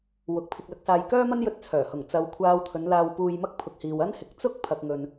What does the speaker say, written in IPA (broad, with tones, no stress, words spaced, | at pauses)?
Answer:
wʊ˨k̚pʰɪ˧k̚lɐ˧k̚saː˧j kœː˥mɐ˥njɵ˧t̚t͡sʰœː˨˩ hʊ˨˩ŋt͡sɐ˨w kʷʰaː˧wt̪ʰɵ˨˧n laː˧wpuː˧jmɐ˥k̚ pʰʊ˨k̚hiː˨w ɐ˥nhɪ˨˥k̚ t͡sʊ˥k̚ pʰɐ˨k̚ŋɵ˨n